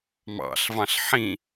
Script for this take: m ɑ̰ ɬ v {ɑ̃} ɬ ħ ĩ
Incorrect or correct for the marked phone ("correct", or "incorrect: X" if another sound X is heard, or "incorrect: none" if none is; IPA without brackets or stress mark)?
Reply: correct